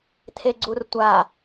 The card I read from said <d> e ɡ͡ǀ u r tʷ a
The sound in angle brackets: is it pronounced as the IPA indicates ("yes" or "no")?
no